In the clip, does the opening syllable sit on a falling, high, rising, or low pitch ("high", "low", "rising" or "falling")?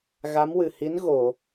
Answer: rising